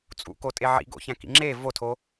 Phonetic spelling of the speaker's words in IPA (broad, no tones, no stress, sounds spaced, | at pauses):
t͡sʼ ṵ k o tʼ e ʕ ḭ ɡ o̰ ç æ̃ k ḭ ŋ͡ǁ e v o tʰ o